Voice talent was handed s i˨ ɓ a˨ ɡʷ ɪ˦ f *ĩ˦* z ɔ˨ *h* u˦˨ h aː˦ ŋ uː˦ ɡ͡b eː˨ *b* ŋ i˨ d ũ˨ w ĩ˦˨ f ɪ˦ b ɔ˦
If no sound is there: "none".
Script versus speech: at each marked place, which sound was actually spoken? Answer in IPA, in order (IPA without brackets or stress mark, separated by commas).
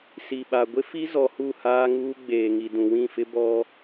i˦, h, none